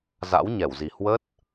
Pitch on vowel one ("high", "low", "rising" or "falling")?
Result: rising